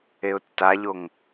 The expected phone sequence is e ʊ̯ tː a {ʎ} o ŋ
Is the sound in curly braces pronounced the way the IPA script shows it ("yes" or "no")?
yes